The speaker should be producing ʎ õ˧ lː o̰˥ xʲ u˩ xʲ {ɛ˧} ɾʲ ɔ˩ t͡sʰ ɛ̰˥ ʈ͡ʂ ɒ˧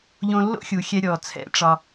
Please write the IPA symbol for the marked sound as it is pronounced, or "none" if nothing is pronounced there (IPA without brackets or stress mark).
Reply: ɛ˧